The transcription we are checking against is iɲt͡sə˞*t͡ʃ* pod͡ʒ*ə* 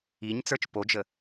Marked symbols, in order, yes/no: yes, yes

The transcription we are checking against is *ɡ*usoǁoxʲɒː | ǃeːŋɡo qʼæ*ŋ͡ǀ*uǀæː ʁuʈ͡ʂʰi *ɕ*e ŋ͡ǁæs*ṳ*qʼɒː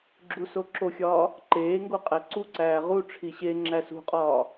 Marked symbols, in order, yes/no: no, no, yes, yes

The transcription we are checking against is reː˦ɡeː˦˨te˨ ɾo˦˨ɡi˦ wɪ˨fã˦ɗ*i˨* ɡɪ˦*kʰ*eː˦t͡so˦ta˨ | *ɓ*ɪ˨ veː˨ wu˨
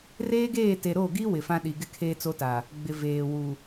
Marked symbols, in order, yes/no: yes, yes, no

